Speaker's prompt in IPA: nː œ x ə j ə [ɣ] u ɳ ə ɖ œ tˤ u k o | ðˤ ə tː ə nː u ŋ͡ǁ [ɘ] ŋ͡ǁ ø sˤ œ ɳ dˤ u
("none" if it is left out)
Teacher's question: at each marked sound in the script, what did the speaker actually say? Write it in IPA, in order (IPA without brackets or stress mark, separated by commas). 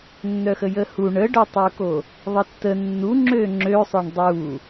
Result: h, ø